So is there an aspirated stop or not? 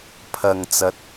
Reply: yes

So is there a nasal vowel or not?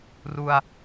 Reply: no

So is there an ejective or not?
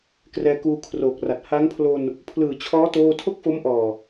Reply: no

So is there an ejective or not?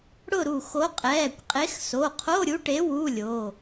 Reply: yes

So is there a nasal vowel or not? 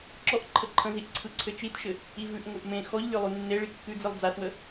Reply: yes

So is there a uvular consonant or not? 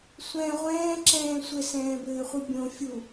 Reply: yes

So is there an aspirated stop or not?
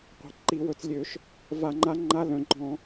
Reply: no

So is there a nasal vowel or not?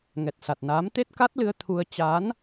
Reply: no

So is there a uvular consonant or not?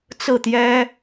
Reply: no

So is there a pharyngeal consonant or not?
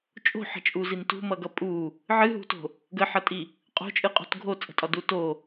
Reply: yes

